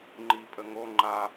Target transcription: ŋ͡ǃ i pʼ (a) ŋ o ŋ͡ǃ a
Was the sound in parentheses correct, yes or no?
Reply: no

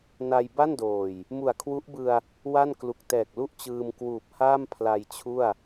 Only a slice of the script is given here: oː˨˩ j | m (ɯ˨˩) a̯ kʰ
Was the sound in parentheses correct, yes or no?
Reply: no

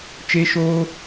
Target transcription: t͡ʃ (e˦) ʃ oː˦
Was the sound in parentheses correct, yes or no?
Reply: yes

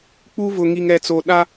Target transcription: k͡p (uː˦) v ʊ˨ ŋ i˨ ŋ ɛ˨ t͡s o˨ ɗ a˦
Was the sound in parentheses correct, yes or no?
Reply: no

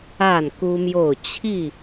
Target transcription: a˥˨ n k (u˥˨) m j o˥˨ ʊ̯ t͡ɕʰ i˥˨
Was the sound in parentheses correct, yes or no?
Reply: no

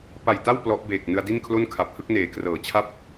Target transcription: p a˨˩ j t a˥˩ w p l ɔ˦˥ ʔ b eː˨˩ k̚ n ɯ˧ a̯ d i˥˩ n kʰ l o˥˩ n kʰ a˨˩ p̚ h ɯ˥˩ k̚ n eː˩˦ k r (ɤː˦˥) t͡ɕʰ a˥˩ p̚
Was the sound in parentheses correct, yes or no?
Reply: no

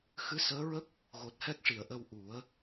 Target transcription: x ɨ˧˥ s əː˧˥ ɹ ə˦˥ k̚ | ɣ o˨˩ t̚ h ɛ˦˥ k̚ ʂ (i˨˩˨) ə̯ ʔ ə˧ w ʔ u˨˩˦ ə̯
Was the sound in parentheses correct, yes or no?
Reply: yes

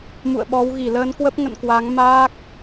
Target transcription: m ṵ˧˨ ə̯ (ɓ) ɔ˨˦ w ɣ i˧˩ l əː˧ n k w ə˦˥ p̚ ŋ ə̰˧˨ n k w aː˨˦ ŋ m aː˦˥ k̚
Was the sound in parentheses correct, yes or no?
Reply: yes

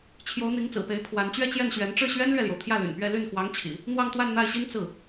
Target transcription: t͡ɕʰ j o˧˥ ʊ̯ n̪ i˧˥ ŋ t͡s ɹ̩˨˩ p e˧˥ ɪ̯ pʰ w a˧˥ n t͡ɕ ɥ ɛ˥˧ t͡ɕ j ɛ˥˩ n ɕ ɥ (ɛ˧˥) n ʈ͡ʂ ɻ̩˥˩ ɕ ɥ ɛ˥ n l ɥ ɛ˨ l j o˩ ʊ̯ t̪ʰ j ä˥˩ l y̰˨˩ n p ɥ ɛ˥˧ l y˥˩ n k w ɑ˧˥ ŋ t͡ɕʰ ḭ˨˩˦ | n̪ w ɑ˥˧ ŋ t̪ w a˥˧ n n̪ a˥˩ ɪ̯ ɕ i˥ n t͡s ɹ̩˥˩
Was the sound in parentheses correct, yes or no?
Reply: yes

